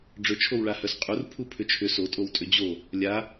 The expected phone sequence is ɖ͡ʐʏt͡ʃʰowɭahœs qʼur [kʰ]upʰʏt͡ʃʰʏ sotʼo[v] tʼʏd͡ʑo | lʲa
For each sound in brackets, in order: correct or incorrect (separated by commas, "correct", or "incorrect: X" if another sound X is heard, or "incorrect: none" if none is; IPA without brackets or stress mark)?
incorrect: pʰ, incorrect: w